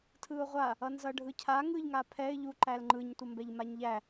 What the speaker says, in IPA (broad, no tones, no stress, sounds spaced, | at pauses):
tʰ ɯ ʊ̯ ʁʷ a | ʌ n z ʌ ɖʱ ɯ cʰ a ŋ ɯ ʎ ŋ a pʰ ɛ ɪ̯ ʎ u ǃ æ l ŋ͡ǃ ɯ ɲ tʷ ʌ m b ɛ ʎ m a ɲ ʎ æ